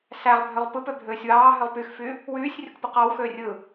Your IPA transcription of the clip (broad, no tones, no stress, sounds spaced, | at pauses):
s æ ʁ bʱ ø ʁ p ɯ p ø bʱ øː sʲ w ɑː ɦ ø ʁ p y x f yː | w yː sʲ rʲ o k p ɯ q ɑ w x øː rʲ ɯː